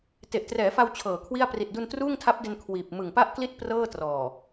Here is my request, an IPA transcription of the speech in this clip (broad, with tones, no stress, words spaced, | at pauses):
te˨˩ʔtrɛː˩˦fa˧w t͡ɕʰɤː˨˩kʰwi˥˩a̯ pri˨˩t̚du˧ntruː˥˩ŋ tʰa˦˥p̚de˧n kʰwiː˨˩p̚ mɯ˨˩ŋpa˥˩ʔkli˥˩t̚ prɤː˥˩ trɔː˨˩